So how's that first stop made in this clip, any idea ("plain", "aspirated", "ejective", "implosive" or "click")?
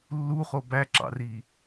plain